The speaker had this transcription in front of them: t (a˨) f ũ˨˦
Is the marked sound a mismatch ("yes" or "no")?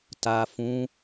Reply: no